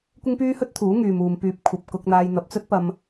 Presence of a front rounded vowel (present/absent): present